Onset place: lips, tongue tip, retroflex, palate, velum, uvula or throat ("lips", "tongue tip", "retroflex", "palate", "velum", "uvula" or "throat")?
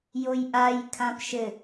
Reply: palate